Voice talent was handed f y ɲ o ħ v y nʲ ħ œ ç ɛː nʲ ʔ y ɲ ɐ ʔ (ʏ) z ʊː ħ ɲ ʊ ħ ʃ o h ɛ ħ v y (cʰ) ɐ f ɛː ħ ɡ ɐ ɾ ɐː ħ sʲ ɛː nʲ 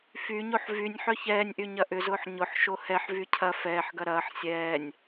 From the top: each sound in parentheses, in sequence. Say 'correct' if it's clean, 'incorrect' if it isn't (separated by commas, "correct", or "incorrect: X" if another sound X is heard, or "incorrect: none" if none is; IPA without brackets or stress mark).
correct, correct